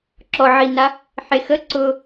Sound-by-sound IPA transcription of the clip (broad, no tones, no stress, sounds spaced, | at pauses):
ǁ ɔ ʕ i n a | ħ e x ə ǀ ʊ